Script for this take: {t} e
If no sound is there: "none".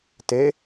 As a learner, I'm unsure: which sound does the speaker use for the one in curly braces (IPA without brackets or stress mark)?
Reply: t